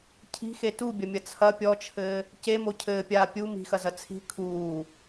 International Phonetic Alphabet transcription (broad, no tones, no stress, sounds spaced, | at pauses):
cʰ i̤ x e t u bʲ ɐ mʲ ɐ t͡sʰ ɐ pʲ ɔ t͡ʃʰ ɘː | c e m o cʰ ɘː pʲ aː pʲ u m i̤ x ɐ z ɐ t͡sʰ i̤ kʰ uː